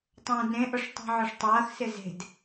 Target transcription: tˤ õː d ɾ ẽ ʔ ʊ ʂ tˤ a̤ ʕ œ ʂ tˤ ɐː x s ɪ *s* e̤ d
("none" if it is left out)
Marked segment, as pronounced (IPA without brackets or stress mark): z